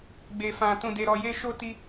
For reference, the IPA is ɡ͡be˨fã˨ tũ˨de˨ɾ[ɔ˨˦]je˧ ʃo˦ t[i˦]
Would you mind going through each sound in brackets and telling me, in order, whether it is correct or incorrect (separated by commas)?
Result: incorrect, correct